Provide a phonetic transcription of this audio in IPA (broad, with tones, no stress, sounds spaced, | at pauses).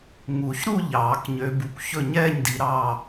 ŋ u˨˩˦ ç ɾ u˥˨ ʎ ɑː˨˩˦ k ɲ ø˨˦ b u˨˦ kʷ ç ɵ˥˨ ɲ ɛː˥˨ ɲ d i˨˦ ɾ ɑː˥˨